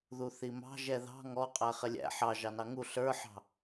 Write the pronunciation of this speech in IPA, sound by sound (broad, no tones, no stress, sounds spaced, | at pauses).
ð u θ i m ɑ̤ ʒ ɛ ð ɑ̤ ŋ ɔ qʼ æ χ ɪ lʲ æ̰ ħ ɑ ʒ ɑ n ɑ ŋ u ɬ ə˞ ħ ɑ̤